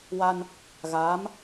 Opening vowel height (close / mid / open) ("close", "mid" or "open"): open